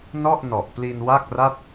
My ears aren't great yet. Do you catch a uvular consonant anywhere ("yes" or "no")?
no